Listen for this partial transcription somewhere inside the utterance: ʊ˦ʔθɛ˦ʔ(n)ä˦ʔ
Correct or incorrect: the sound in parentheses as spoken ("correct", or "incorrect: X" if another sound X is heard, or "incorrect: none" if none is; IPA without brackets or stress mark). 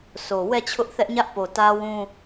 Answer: incorrect: ɲ